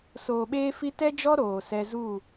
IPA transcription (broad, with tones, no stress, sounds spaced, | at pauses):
s oː˨ ɓ eː˦ f i˦ t ɛ˦ d͡ʒ ɔ˦ ɾ oː˨ s ɛ˦ z u˦˨